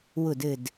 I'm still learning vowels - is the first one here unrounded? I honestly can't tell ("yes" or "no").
no